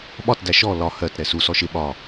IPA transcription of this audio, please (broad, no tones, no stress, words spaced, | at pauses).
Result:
ɓɒt dæʃɔ lɒ hɜt ɾɛsu sɔʃɪ ɓɒ